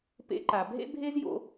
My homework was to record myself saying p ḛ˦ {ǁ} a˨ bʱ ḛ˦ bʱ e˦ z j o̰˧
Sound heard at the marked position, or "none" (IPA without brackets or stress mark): ǃ